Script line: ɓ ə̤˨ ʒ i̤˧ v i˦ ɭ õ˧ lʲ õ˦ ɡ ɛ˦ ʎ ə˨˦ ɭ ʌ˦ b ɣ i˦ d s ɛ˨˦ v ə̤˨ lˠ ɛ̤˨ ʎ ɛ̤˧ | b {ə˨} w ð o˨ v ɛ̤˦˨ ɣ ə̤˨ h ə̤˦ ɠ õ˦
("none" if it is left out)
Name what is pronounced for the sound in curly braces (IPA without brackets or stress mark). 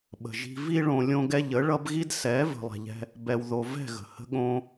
ɛ˨